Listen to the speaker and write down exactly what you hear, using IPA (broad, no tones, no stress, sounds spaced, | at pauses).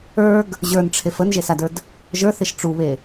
ə˞ ɡ | ʑ ə˞ n ʈ͡ʂʰ e f ə n ʒ e s a d ə˞ d | ʒ ə˞ θ e ʃ ʈ͡ʂ u β e